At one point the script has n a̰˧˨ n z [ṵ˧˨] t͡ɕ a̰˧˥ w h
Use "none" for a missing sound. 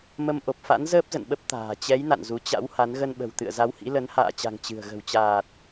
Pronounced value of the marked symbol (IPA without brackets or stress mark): u˨˦